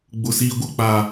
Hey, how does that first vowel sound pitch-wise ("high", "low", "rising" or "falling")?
low